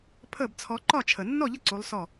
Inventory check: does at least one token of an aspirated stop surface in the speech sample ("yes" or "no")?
yes